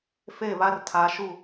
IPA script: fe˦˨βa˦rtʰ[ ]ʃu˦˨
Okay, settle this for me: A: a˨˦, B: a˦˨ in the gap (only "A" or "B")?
A